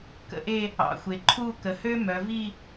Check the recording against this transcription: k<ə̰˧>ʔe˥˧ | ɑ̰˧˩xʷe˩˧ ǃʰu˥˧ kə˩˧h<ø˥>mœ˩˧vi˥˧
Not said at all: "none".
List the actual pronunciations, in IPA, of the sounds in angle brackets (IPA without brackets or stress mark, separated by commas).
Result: ə̰˧, ø˥